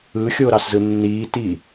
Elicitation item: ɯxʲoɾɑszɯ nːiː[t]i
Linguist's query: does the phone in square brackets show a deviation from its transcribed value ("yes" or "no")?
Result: no